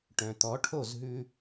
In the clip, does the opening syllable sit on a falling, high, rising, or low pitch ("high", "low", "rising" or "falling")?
low